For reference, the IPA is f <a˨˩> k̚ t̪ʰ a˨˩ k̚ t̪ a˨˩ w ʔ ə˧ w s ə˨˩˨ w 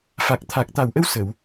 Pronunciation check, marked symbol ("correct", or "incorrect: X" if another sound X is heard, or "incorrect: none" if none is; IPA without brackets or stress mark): correct